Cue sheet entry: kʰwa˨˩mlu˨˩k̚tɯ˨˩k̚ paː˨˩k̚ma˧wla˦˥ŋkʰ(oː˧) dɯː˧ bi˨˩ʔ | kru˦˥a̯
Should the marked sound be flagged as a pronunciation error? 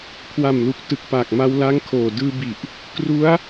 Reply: yes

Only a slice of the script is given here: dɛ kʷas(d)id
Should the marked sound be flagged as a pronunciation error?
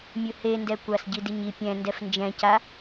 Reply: yes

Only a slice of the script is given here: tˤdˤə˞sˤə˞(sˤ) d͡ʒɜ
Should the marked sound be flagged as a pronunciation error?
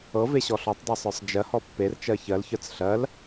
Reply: no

